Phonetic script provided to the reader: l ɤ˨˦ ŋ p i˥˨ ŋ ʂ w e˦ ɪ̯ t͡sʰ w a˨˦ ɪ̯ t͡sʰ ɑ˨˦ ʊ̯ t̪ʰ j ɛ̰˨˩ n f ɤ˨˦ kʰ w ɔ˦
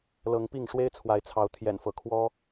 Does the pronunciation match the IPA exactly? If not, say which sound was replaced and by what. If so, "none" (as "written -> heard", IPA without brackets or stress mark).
none